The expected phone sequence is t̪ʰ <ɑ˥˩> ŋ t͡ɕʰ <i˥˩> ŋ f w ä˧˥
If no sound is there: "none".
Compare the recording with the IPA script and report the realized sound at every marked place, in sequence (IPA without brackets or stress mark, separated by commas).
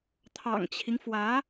ɑ̰˨˩, i˦